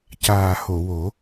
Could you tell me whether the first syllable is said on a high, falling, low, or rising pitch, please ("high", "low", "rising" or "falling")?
low